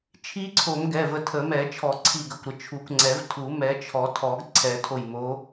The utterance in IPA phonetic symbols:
t͡ʃʰi˦˥ǀʰo˨˩˦mɡɛ˩˧˩ və˧˩tʰə˨˩˦ mɛ˨˩˦t͡ʃʰɔ˨˩˦ ǀʰi˧˩ɡə˩˧˩kʷɾə˧˩ t͡ʃʰu˨˩˦kʷŋ͡ǀɛ˨˩˦v tʰu˨˩˦mɛ˨˦t͡ʃʰɔ˨˩˦tʰɔ˨˩˦ɡ ǀʰɛ˨˩˦ tʰo˧˩jmo˨˦

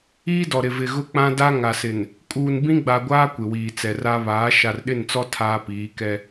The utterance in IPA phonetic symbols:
iː˦dɔ˨ ɾɪ˨vɪ˨ ɣʊ˦k͡pã˦da˦ ŋa˨sɪ˨n | kʼuː˨nbĩ˦ɡ͡ba˨ɡʷaː˦ kʷɪ˨wiː˨t͡sɛ˨ ra˦ βaː˨˦ ʃa˨rɗɪ˦˨nt͡sɔ˦ tʰaː˦piː˨˦kɛ˦

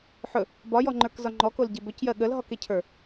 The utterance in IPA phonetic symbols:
ħɵ | bɒjɔŋ͡ǃə˞kzɒ ŋ͡ǃɔkolɟe bɵcjɜ ɠəlɦɔkecʰə˞

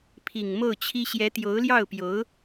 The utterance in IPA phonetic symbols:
pʰi˨˩ŋmo˥˩ʊ̯t͡ɕʰi˥ ɕjɛ˧˥t̪jo˧˥ʊ̯ljɑ˥˩ʊ̯pjo˧˥ʊ̯

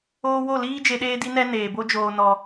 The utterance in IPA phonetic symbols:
oː˧ wo˦˨liː˦ d͡ʒe˧ɗeː˦di˦nɛ˦ neː˨bo˦d͡ʒoː˧ nɔ˧

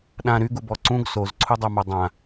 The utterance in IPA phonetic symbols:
ɗã ɾyɡubɔ ǀũɡ sozǀʰudˤœma dˤã

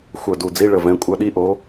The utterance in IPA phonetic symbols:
xʷœ˧˩du˧˩d͡zi˧˥˧ɭə˧˩ vɛ̃˨˥kʷʼœ˨˥ɗi˧˥˧ʔo˨˥

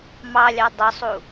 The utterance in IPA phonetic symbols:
mɑlʲɑ dˤʊsˤu

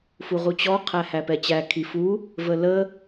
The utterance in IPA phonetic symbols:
fuʁut͡ɕɔ qʰæhæpɛt͡ɕæ kʰifu | vələ

